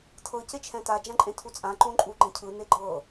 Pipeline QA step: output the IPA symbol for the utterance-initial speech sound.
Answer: tʰ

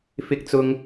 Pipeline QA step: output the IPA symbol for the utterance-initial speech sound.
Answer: f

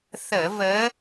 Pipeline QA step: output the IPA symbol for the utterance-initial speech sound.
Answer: θ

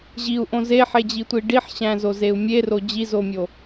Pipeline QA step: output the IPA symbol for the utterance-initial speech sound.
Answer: ʑ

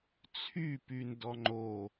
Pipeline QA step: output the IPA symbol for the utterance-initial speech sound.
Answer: t͡sʰ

